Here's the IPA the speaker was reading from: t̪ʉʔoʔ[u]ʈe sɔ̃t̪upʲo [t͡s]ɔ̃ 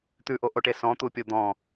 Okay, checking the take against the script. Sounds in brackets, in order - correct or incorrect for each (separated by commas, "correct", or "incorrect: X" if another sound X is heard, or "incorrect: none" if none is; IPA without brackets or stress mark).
incorrect: o, incorrect: d̪